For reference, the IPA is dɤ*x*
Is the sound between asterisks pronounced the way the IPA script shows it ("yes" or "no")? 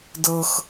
yes